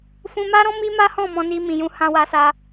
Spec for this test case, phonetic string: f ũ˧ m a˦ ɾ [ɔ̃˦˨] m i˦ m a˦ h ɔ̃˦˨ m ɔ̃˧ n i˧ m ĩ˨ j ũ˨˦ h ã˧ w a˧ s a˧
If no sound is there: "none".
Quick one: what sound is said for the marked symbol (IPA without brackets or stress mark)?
ɔ̃˦